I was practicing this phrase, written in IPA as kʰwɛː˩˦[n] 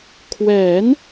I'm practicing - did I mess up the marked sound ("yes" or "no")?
no